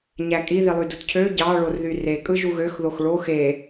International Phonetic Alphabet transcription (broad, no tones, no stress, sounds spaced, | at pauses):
ɲ æ kʼ i ð i lˠ y d u t cʰ ø ɟ ɑ ɭ o r ð y r e kʼ ɯ ʒ u ɣ ø x ð o x ɭ o x e